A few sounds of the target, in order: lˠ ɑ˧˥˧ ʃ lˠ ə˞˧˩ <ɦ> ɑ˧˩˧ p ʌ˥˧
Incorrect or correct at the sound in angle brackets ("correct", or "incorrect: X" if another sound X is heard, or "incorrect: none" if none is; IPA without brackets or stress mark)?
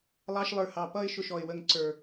incorrect: h